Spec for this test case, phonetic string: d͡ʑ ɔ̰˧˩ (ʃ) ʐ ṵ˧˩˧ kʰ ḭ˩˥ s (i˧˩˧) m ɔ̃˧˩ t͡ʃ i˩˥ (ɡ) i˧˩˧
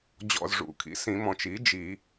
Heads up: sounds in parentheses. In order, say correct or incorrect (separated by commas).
incorrect, incorrect, incorrect